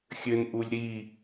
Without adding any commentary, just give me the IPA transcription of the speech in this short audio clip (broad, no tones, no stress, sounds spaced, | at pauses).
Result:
xʲ ɘ n ʔ u lʲ ɾ i